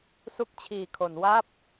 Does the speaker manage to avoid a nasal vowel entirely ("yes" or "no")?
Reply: yes